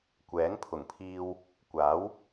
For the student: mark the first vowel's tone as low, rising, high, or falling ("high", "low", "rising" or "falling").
rising